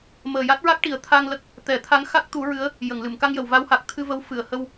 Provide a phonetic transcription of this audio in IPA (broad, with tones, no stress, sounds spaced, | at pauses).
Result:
m əː˨˩ j a˦˥ t̚ ɹ a˦˥ k̚ ʈ i˨˩ ə̯ t̪ʰ a˧ ŋ l ə˦˥ k̚ | t̪ ɛ˨˩˦ t̪ʰ a˧˥ ŋ x a˦˥ k̚ t̪ u˨˩˦ ɹ ɨ˧˥ ə̯ | j ə˨˩˨ ŋ l ɨ˨˩˨ m k a˧ ŋ j ə˨˩˨ w v a˧˥ w h a˨˩ k̚ t̪ʰ ɨ˧ v ə˧˥ w f ɨ˨˩˨ ə̯ h ə˧ w